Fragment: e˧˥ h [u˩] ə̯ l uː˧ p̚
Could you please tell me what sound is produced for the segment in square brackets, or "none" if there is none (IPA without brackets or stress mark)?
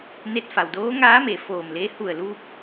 u˧˩